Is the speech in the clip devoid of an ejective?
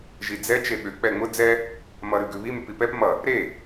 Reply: yes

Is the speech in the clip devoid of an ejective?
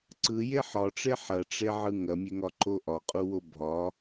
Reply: no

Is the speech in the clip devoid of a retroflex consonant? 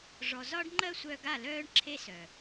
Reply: no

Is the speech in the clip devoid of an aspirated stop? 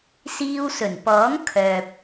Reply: no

